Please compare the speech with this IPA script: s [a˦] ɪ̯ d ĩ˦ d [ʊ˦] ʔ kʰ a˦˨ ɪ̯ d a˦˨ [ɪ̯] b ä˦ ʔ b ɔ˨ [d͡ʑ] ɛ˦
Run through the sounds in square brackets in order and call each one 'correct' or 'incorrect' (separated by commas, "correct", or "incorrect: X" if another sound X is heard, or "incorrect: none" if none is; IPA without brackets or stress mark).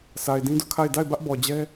incorrect: a˨, correct, correct, correct